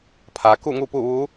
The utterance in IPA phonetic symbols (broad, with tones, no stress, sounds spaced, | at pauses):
pʰ aː˩˧ k u˥˨ ŋ u˥˨ p u˥˨ ʋ u˧˥